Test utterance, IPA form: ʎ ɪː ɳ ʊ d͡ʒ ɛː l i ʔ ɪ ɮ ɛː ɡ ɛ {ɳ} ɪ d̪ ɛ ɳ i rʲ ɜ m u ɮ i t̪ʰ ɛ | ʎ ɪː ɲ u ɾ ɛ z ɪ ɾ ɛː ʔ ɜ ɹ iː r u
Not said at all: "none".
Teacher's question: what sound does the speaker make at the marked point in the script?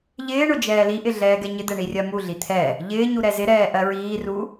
ɲ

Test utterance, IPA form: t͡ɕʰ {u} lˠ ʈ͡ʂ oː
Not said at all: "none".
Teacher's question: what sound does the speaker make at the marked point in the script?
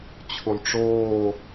u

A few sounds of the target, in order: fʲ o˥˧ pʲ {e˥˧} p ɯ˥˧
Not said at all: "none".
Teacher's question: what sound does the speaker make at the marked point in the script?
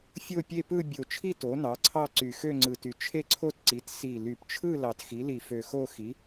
e˥˧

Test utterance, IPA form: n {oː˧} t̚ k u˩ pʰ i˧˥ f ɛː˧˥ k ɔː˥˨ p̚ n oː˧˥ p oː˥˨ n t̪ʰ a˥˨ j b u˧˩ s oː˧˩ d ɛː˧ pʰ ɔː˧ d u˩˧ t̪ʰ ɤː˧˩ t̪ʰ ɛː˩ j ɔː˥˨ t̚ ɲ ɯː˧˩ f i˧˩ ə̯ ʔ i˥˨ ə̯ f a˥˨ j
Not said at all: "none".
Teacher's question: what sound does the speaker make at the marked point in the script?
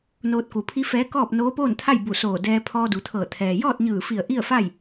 oː˧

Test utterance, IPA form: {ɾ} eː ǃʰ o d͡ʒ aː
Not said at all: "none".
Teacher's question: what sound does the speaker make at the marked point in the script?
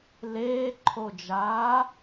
l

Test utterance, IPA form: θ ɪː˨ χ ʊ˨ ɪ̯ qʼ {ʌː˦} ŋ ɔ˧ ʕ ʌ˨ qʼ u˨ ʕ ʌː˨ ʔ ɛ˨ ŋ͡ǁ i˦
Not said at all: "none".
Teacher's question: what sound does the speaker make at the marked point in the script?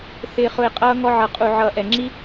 ʌː˧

